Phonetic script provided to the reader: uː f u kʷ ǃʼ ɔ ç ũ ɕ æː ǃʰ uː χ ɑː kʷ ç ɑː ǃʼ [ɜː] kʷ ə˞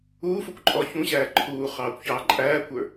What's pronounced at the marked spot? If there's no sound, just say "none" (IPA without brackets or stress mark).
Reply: æː